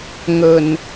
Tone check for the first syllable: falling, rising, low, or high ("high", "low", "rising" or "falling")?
low